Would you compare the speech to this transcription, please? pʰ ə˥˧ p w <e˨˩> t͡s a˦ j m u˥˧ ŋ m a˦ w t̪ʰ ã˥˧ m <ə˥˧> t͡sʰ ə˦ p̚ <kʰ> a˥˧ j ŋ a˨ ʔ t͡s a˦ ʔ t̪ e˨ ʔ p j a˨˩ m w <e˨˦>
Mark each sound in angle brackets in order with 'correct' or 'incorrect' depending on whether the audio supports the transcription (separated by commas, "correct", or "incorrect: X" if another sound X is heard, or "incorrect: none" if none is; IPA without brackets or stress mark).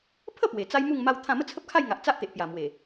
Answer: correct, correct, correct, incorrect: e˨˩